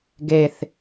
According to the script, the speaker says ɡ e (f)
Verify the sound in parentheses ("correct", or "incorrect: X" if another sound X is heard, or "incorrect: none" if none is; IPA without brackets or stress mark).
incorrect: θ